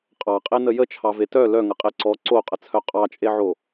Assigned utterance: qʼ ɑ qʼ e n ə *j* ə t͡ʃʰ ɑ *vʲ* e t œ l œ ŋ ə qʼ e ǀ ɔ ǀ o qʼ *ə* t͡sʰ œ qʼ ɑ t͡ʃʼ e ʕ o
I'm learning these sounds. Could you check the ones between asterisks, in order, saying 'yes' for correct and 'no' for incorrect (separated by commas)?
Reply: yes, no, yes